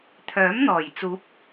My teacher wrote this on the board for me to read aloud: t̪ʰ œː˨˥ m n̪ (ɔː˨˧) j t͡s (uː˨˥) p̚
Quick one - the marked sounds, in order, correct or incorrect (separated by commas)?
incorrect, correct